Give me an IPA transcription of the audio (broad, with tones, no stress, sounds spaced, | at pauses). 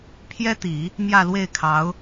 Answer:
pʰ j ɛ˥ t̪ i˨˩˦ | m j ä˥˧ l w e˥˩ ɪ̯ kʰ ɑ˧˥ ʊ̯